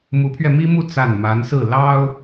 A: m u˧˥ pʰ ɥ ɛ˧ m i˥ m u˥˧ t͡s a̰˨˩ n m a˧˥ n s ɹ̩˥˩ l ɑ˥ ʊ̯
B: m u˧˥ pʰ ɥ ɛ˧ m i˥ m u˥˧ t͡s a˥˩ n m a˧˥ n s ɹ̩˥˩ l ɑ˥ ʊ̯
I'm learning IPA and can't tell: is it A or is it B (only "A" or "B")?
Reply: B